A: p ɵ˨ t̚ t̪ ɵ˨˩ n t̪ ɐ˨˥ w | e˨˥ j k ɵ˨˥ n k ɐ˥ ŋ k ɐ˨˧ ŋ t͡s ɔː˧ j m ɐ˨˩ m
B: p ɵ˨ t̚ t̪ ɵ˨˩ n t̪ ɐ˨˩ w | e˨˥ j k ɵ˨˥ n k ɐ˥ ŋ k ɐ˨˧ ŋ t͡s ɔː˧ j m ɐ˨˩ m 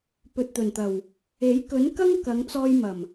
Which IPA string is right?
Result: B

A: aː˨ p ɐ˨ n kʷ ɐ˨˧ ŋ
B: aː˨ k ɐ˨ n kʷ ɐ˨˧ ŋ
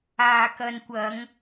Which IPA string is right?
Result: B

